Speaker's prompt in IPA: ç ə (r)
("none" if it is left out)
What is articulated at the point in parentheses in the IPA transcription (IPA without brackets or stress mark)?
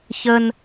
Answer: n